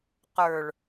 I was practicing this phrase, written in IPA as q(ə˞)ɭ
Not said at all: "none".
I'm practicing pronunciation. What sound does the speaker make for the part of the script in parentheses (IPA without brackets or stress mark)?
ə˞